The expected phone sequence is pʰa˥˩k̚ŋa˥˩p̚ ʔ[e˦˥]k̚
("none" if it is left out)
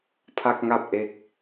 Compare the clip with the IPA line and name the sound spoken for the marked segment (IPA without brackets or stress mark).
e˦˥